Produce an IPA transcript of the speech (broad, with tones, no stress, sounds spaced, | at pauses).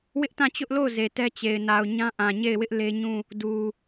w ɪ˦ ʔ t ã˦˨ t͡ɕ ʊ˦ ʔ l o˦˨ ʊ̯ z e˨ t ɛ˦ t͡ɕ e˨ ɪ̯ n a˨ ʊ̯ ɲ ã˦ ʔ ã˨ ɲ e˦˨ ɪ̯ w ɪ˦ ʔ l e˦ ɲ ũ˦˨ | d u˨